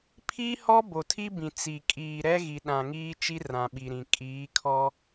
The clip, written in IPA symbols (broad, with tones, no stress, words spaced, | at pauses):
pʰi˦hɔ˦ bo˨tʰi˦bĩ˨ t͡si˨ kʼiː˨ɾɛ˦ ɣi˨ɗã˨ŋiː˦t͡ʃi˦ rã˨ɓi˨ɾĩ˨ kʼiː˨˦kʰɔ˦